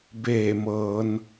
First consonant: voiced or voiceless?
voiced